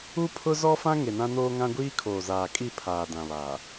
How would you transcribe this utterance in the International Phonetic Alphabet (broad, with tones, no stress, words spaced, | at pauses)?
u˦pʰʊ˦zɔ˦fã˦ ŋe˨nã˦noː˦ŋã˦ ɡʷiː˦kʰoː˨zaː˨kʼi˦˨ pʰaː˨dã˨βa˨